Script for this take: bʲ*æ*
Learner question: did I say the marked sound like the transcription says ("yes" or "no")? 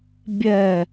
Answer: no